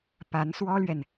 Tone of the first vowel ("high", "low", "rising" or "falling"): rising